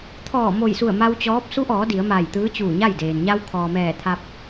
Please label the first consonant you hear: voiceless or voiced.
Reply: voiceless